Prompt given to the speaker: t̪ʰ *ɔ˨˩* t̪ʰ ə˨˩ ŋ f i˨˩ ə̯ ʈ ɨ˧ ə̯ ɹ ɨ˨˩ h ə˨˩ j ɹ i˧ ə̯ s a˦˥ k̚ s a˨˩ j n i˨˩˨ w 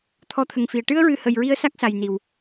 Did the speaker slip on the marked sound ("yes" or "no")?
yes